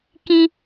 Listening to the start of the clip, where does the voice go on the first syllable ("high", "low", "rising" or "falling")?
high